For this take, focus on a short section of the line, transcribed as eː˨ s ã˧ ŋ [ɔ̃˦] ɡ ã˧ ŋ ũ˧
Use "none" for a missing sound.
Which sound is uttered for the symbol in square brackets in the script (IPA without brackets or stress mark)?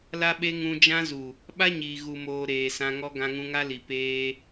ɔ˦